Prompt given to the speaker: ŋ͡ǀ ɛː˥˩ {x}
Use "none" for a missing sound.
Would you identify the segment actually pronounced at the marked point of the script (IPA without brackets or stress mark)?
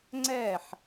ħ